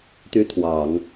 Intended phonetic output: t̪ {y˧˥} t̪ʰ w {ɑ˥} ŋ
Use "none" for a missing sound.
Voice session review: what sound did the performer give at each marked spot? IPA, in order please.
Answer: y˥, ɑ˨˩˦

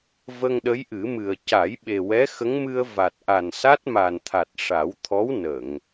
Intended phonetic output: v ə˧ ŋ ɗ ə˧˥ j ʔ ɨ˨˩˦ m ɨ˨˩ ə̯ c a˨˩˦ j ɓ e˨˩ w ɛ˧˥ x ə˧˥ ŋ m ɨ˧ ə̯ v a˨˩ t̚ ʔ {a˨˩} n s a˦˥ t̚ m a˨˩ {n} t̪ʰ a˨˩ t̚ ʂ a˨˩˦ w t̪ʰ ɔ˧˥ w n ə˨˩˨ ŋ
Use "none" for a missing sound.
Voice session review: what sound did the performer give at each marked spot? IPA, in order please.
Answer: a˨˩, n

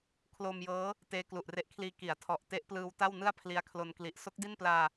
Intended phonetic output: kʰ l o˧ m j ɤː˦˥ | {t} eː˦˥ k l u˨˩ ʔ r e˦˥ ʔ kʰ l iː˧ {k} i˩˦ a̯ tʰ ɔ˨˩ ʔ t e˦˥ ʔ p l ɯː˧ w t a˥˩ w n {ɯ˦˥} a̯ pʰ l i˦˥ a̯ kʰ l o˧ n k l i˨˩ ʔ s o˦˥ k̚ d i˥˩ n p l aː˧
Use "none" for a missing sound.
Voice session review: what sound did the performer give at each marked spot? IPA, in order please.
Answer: t, k, ɯ˥˩

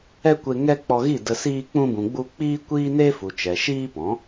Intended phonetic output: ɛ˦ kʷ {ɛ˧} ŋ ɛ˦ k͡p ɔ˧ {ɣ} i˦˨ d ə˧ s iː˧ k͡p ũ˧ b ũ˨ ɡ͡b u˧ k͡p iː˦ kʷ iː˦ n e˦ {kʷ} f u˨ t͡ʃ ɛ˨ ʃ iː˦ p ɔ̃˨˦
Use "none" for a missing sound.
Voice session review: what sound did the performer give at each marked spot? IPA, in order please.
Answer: e˧, ɣ, none

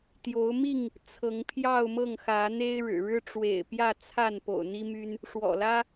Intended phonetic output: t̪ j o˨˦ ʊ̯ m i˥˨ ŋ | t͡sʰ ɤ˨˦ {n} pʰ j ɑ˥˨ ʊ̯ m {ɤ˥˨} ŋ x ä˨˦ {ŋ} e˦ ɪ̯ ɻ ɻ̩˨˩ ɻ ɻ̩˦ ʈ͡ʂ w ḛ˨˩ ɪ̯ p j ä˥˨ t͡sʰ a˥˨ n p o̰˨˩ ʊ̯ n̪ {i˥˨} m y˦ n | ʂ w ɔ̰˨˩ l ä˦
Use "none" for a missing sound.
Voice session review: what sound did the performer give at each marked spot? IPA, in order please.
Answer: ŋ, ɤ˥˨, n̪, i˦

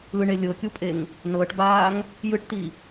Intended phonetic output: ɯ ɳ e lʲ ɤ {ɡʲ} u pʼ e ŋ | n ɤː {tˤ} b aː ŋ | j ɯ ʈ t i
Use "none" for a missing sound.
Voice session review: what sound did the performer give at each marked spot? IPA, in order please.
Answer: kʲ, ʈ

